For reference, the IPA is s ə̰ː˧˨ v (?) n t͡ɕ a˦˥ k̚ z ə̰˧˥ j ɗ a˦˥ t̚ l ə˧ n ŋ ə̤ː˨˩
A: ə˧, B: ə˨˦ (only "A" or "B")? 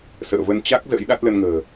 A